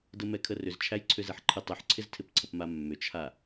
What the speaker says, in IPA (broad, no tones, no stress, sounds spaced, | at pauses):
d ə m ɛ kʰ ə r ʏ z t͡ʃʰ æ j ǀʰ ʏ z e ħ ǃʰ ə tˤ ʏ ħ ǀʰ ɪ z tʰ ɪ p ǀʰ ə p m a mː ʏ t͡ʃʰ a